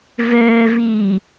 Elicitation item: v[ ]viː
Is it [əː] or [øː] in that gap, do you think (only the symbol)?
øː